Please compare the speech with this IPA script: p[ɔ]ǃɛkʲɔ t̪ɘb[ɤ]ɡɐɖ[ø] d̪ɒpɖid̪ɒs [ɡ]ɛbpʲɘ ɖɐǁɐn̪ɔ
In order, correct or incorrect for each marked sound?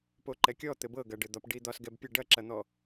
incorrect: o, correct, incorrect: ɘ, correct

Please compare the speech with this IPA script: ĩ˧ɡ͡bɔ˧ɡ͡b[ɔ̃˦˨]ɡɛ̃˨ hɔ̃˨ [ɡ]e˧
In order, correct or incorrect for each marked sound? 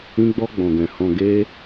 incorrect: ɔ̃˨, correct

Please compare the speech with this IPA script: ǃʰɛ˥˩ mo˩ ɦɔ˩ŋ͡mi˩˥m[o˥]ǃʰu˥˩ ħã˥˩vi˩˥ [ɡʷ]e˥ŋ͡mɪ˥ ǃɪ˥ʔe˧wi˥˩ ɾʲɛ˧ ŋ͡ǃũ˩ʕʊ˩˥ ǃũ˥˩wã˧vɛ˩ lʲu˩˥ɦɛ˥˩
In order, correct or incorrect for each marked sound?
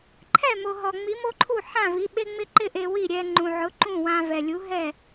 correct, incorrect: ɓ

